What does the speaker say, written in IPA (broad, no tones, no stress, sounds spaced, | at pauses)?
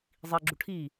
zˤ i ɡ͡ǁ u ʈʰ i